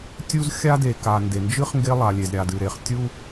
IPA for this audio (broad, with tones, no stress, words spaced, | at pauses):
tʲu˦z xʲa˦de˨ka˨ nde˨nd͡ʒɨ˦χ ŋɡe˦lˠa˨lʲe˨z ɾʲa˨dɨ˨ ɾe˨χ tʲu˦